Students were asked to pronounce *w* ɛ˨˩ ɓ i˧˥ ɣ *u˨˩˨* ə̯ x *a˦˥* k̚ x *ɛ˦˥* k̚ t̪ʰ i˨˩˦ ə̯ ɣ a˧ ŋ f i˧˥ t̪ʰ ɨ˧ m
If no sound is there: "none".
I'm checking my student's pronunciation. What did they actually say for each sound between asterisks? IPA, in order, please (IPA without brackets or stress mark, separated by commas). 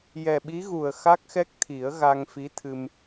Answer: j, u˨˩, a˦˥, ɛ˦˥